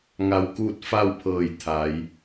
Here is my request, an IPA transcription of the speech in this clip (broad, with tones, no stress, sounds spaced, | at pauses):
ŋ a˧ w k uː˥˨ t̚ f a˥˨ w pʰ ɤː˧˩ j t̪ʰ a˩˧ j